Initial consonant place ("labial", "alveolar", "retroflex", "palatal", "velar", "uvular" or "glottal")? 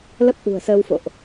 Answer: alveolar